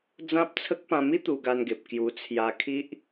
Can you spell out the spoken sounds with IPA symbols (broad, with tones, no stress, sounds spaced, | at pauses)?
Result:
d͡z ã˦ p̚ t͡sʰ ə˦ k̚ p ã˧ m i˦ t̪ u˧ ɡ a˧ n ɡ e˨ p̚ k j u˧ t͡sʰ j a˧ kʰ i˦ ʔ